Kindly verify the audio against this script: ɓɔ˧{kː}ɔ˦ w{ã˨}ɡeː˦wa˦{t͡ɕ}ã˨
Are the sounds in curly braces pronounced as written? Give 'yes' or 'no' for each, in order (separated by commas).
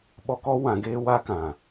no, no, no